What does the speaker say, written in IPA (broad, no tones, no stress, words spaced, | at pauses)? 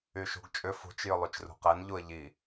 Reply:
yʃṳɡt͡ʃʼʏ fṳt͡ʃ jʏlˠyt͡ʃrṳqɛn ʎuə̯ʎi